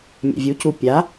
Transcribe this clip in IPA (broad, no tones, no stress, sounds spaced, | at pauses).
mʲ ɛ̰ vʲ u c u pʲ a